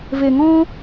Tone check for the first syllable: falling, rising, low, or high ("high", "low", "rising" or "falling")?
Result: low